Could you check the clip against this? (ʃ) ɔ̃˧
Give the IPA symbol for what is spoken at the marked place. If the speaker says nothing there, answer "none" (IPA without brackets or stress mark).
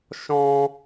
ʃ